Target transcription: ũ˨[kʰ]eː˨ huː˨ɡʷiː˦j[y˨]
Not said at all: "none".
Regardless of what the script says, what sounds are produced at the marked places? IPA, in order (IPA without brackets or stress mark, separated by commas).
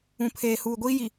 pʰ, i˨